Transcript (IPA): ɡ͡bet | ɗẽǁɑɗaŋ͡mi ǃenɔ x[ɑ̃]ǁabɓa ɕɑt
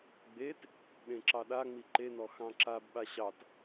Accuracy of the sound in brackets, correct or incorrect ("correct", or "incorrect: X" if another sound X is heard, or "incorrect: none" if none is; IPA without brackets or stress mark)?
correct